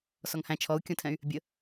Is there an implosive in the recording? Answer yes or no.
no